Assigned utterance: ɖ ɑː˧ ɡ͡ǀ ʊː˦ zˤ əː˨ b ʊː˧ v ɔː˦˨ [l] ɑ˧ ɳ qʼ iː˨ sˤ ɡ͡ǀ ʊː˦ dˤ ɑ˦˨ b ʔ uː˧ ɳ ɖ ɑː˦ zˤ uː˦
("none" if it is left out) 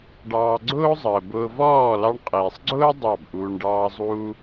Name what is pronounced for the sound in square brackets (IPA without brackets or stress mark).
l